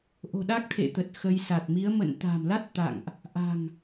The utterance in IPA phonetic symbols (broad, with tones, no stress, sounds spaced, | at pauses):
ʔ o̤˨˩ ɗ a˦˥ k̚ t̪ʰ ḛ˧˨ t̪ ə˨˩ t̚ x ə˧ j s a˨˩ t̚ m i˨˦ ə̯ m ə̰˧˨ n t̪ a̤˨˩ m l a˦˥ t̚ t̪ a̰˧˨ ŋ ʔ | ʔ a̤˨˩ ŋ